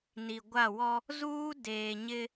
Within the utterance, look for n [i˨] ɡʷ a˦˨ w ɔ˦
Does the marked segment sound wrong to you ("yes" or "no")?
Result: no